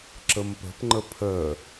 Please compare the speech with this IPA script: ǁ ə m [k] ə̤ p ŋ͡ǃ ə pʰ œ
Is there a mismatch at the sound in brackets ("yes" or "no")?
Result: yes